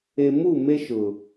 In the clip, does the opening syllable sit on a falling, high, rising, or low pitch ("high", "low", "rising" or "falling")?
low